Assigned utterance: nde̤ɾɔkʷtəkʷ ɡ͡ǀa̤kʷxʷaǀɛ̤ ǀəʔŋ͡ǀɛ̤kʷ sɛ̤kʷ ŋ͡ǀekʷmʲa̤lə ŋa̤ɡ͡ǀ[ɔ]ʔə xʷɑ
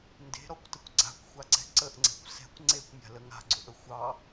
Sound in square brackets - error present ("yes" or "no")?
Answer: yes